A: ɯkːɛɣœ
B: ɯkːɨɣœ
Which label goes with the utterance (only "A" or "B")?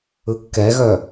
A